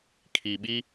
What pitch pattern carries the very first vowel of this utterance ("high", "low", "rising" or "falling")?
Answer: low